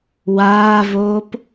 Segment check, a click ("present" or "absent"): absent